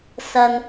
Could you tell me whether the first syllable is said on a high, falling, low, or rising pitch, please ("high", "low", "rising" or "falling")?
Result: low